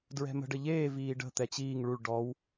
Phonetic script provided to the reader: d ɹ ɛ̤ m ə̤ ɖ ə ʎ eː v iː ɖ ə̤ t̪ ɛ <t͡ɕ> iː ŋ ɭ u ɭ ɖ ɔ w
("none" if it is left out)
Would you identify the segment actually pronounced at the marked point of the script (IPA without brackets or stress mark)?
t͡ɕ